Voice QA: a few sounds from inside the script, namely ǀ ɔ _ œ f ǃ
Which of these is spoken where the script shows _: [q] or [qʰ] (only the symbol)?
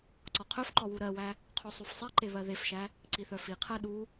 qʰ